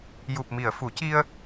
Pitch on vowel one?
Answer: low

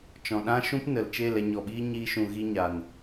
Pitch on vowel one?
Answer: low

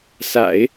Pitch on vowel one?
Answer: low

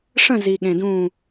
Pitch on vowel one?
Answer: falling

